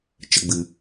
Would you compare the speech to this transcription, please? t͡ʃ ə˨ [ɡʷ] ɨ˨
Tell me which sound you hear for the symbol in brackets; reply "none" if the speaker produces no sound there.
ɡ͡b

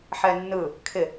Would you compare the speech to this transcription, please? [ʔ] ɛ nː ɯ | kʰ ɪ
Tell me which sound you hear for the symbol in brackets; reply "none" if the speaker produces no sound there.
ħ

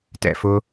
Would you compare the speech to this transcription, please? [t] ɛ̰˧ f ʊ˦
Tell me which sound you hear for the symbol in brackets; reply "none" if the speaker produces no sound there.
t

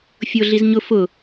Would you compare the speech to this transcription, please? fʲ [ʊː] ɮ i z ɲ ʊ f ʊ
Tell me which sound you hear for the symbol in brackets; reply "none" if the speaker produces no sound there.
ʊː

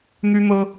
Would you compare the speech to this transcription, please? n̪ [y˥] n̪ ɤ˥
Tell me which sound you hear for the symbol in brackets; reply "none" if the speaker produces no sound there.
y˥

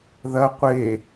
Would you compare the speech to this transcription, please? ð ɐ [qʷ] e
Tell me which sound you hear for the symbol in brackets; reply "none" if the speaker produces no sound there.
qʷ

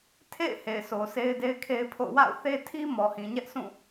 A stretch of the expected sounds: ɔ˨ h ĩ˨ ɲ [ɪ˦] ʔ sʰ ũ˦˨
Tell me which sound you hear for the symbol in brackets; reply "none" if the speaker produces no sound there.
ɛ˦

